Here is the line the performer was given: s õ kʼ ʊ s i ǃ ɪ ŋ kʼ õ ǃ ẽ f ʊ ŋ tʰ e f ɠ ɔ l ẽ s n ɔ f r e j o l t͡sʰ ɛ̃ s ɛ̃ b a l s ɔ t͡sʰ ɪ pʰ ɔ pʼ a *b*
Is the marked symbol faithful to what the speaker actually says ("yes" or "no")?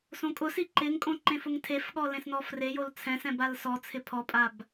yes